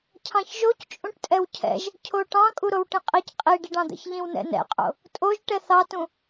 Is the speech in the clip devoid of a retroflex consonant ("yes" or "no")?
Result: no